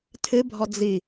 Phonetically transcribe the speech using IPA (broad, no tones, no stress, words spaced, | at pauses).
tʰɨbʱɔ d͡zi